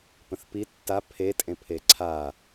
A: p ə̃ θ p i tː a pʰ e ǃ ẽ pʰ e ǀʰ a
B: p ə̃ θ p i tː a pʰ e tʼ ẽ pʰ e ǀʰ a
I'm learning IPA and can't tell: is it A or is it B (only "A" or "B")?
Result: B